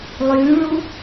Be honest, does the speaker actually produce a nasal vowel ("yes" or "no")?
no